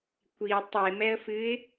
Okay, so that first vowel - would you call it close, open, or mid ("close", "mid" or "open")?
close